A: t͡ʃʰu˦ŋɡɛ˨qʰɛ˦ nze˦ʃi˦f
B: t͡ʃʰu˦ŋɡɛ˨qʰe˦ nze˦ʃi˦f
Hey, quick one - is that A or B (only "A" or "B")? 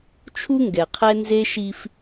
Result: A